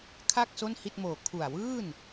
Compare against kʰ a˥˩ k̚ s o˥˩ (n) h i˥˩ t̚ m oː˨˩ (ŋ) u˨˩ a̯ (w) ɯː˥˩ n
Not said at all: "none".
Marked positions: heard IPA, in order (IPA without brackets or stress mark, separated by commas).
n, kʰ, w